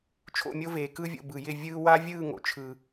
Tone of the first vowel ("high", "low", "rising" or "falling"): falling